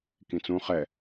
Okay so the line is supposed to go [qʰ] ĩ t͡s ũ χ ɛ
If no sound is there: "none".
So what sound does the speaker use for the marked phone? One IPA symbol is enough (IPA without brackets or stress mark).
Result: k